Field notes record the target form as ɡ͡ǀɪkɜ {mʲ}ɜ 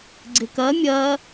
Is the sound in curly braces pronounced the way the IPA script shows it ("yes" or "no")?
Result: yes